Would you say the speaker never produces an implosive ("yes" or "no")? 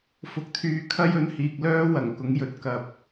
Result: yes